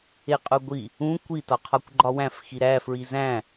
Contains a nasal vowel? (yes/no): yes